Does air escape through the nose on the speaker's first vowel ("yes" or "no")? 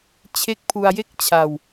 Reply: no